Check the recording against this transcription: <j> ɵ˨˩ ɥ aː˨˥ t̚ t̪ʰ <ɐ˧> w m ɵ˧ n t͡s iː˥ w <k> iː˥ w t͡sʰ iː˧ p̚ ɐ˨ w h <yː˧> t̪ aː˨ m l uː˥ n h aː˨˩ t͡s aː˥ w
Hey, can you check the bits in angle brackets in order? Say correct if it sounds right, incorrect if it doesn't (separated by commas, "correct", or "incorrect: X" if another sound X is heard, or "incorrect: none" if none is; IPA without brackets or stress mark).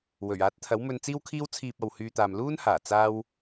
incorrect: w, incorrect: ɐ˨˥, incorrect: kʰ, correct